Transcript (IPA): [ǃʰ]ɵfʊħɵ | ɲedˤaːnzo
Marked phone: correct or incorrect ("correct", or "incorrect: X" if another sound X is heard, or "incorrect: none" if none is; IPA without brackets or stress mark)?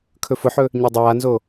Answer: incorrect: kʰ